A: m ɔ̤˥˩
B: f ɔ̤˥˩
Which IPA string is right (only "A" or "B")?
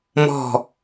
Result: A